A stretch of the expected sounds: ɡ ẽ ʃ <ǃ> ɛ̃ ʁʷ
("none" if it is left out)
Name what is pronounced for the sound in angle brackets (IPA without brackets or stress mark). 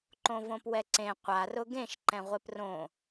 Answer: ǃ